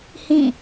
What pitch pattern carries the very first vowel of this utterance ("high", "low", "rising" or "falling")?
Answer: falling